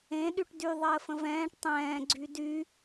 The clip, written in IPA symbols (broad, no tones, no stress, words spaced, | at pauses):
ẽ ɗyʈdyðˤəː fə̃vɛ̃ːʈ tˤɛ̃ː ɡ͡ǀydy